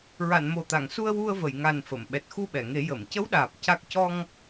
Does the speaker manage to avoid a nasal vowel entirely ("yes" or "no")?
yes